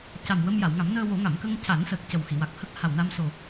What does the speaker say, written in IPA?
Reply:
c a˨˩ m w ə˧ m j a˨˩˨ w ŋ a˨˩˦ m n əː˧ w o˨˩˦ ŋ a˨˩˨ m k ə˧ ŋ c a˨˩˦ n s əː˨˩ k̚ c ə˨˩ w x i˨˩˨ w a˨˩ k̚ h ə˦˥ k̚ h a˨˩ w n a˧ m s o˨˩

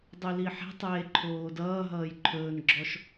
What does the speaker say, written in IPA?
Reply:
dˤ u l i ħ ɛ̤ tˤ eː ǃʰ oː d ʌː ɦ ʌː j ǃʰ ɵː n ɡ͡ǁ ɔ ʃ

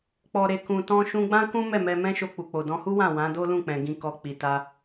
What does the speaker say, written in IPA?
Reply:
k͡p ɔ˨ ɾ e˨ k ũ˨ t ɔ̃˧ ʃ ũ˧ ɡ͡b ã˦ k ũ˦ m ɛ˦˨ m ɛ˧ m ɛ̃˦ ʃ o˧ k͡p u˨ k͡p o˨ d ɔ̃˧ h u˦ w ã˦˨ w ã˨˦ d o˦ l ũ˦˨ k͡p ɛ̃˨ ɡ ĩ˨ k ɔ˨ k͡p i˨ t a˧

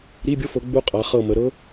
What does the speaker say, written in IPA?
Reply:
ɾ i˧˥˧ bʲ o˦˥ f ɤ˨˦ ɡ͡b u˦˥ qʼ a˨˦ χ ɤ˦˨ m ə˨˦ ɾ ɤ˦˥

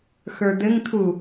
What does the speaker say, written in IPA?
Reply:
x ə˞ d̪ ɘ ŋ t̪ʰ u

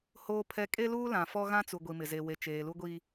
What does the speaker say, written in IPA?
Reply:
h oː˦ pʰ ɛ˦ kʼ e˦ l uː˦ l ã˨ f ɔ˦ ɣ ã˦ t͡s u˨ ɡʷ i˨ m ɪ˨ z e˨ w e˨ t͡ʃ eː˨ l u˦ ɡʷ i˦

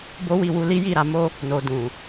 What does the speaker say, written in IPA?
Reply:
b o˦ w i˦˨ w u˧ l i˦ j i˦˨ ɾ a˧ m o˦ | n o˨ d ũ˨

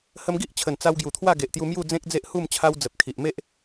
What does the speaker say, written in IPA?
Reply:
h ə˧ m ɡ i˦ ʔ t͡ɕʰ ə˨˩ n t͡s a˧ w ɡ j u˨˩ t̪ʰ w a˥˧ ɡ e˨ ʔ t̪ j u˧ m j u˥˧ d͡z ẽ˦ k̚ d͡z e˦ ʔ h u˥˧ m t͡ɕʰ a˧ w d͡z ə˨ p̚ kʰ i˨ ʔ m e˦ ʔ

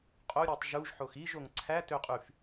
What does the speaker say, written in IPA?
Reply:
qʼ o ɾʲ u tˤ ʒ u ʒ ħ o x i ʒ o ŋ ǀʰ æ t ø qʼ y f

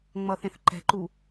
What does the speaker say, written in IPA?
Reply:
ŋ͡m ʌ θ ẽ θ ǃ ɛ̤ ǃ u

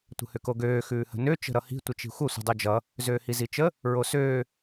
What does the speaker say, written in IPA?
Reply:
tʷ ə̤ h ʏ k o ɡ øː x ʉː h ə̤ n ø t͡ʃ ə̤ ɾ ʌ h i̤ tʷ ə t͡ʃ i̤ xʷ ʌ sʷ ə̤ dˤ o d͡ʒ ʌ | z øː h i z i t͡ʃ ə | ɹ o s øː

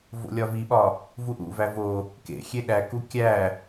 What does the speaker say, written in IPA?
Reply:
v o̰ lʲ ɒ v i ɓ ɒ | v u ʔ ṵ v æ v o | k ḛ xʲ e ɗ æ k u kʲ æ

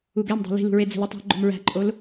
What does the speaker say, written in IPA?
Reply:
u ɡ æ m dˤ æ̤ l i̤ l ṳ ɹ e d͡z e̤ l i tˤ æ̤ ɡ͡ǃ o̤ m ɹ æ̤ ǃʼ o l

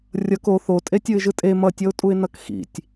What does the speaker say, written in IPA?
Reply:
rʲ ʌ k o θ o tʼ e tʲ ɯ ɪ̯ ʒ ɯ tʼ e m ʌ tʲ ʌ ʊ̯ tʼ u ɪ̯ n ʌ k x ḭ tʲ

